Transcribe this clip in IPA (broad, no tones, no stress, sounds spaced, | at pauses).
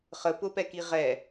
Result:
χ ə p ʊ p ɛ k i ʁ ɛ